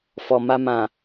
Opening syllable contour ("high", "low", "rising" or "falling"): low